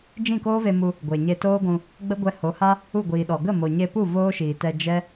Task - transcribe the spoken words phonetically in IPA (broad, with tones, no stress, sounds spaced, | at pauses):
d͡ʒ ĩ˦˨ k oː˦ v e˧ m u˧ | ɡʷ e˨ ɲ e˧ t oː˦ ɡʷ ũ˧ | ɡ͡b ə˦ ɡʷ ɛ˧ h o˨˦ h a˦ | u˦˨ ɡʷ iː˨ ɗ ɔ˨ ɡ ə˦˨ m o˨ ɲ e˧ p u˦˨ v oː˦ ʃ iː˨ t ɛ˧ d͡ʒ ɛ˦